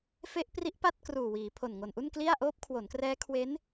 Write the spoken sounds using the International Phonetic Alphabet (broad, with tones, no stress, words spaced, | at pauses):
fe˦˥ʔpri˦˥ʔ pa˥˩t̚ kruː˨˩wiː˩˦pʰo˨˩n ŋo˨˩nʔu˥˩nkli˥˩a̯ ʔoː˦˥p̚kʰwo˩˦nkrɛː˦˥ kʰwe˦˥n